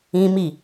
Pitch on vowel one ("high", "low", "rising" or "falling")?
high